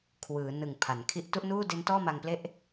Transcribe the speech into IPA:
kʰ w ɯː˩˦ n ɯ˨˩ ŋ pʰ a˩˦ n kʰ i˥˩ ʔ t u˥˩ ʔ n uː˥˩ d e˦˥ n t ɔː˥˩ m a˧ ŋ p l e˥˩ ʔ

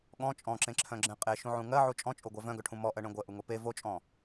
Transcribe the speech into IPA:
ɠ ɔ̃ t͡ʃʼ ɔ̃ ǁ ẽ ǁʰ œ̃ ɡ͡ǁ ẽ qʼ e ʃ ũ ʕ ũ ŋ ɜ ʕ u t͡ʃʼ ɔ̃ t͡ʃʼ o ɡʷ ɜ v œ̃ ɡ œ ʈʰ ũ m ɔ ʔ ɜ ɳ ẽ ɡʷ ɜ ʔ u ŋ o p e v o t͡ʃʼ ɔ̃

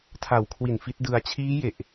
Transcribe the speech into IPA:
tʰ a˨˩ w kʰ w i˨˩ n f i˦˥ t̚ d ɯ˧ a̯ t͡ɕʰ iː˦˥ j e˨˩ ʔ

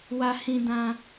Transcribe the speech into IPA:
w ä˨ h ĩ˨ d ã˨

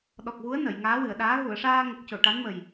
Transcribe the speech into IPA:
ɗ ɔ˨˩ k̚ ɣ u˧˥ ə̯ n ə˨˩˨ j ŋ aː˧˥ w ɨ˨˩˨ ə̯ ɗ aː˧˥ ɣ u˨˩˨ ə̯ ʂ aː˧ ŋ ə˨˩ k̚ c o˨˩˨ ʈ a˧˥ n m ə˨˩ j

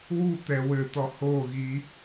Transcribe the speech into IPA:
w u t̪ ɛ w ɘ t̪ ɔ h o ɣ i

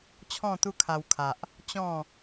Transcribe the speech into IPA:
t͡ɕʰ ɔ̃˥˧ t̪ u˦ kʰ a˧ w kʰ a˨ ʔ | t͡ɕ ɔ̃˥˧

